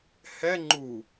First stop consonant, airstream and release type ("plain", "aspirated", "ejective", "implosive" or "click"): click